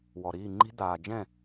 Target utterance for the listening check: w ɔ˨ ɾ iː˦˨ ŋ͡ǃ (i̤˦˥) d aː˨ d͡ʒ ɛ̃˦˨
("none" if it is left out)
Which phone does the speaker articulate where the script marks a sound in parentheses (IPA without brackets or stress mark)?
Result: i̤˦˥